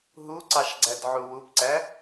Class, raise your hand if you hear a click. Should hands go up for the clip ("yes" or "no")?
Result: yes